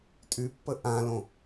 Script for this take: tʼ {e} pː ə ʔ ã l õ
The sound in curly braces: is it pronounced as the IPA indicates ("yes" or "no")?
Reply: no